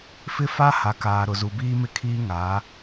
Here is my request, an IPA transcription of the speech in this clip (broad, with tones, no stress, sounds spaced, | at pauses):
f ɪ˦ f a˦ h a˨ k aː˨ ɾ ʊ˨ z u˨ b iː˦ m ɪ˦ kʰ iː˦ ŋ a˨˦